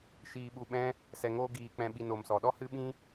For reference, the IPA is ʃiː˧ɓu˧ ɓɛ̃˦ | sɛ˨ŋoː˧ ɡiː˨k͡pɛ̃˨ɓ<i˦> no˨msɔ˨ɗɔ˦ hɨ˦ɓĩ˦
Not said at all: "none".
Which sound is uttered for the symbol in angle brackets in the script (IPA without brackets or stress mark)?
i˨